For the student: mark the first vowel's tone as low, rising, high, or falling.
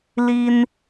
high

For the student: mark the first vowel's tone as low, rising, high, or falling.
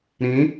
rising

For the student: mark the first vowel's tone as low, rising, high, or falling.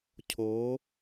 rising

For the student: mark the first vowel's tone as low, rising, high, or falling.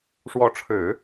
rising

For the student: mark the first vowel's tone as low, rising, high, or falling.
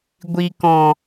low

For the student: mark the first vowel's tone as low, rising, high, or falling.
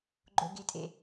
high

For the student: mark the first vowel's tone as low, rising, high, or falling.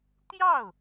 falling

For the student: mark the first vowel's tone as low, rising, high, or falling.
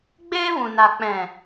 high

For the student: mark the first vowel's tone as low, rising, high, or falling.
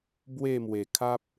falling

